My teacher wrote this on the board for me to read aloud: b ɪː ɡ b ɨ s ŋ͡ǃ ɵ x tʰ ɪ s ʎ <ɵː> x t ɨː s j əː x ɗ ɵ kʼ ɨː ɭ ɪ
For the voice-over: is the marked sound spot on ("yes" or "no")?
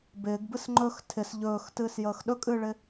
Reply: yes